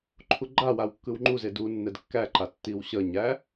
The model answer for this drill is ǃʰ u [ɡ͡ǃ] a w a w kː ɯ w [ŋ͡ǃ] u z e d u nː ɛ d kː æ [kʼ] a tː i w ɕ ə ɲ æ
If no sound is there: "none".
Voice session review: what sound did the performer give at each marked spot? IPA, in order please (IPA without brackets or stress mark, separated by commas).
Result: ɡ͡ǃ, ŋ͡ǃ, ǃ